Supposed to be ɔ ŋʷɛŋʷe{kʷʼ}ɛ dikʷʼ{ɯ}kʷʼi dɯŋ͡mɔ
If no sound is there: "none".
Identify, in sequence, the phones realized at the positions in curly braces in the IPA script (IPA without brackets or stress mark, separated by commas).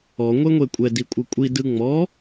kʷʼ, ɯ